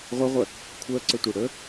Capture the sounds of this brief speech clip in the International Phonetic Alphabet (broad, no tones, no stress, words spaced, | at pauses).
ʁʷəʁʷɜ | kʷʰɜǀətʷe ɽə